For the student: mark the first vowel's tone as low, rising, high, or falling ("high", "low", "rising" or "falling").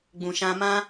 low